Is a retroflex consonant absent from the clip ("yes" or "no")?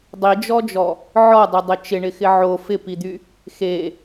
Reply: no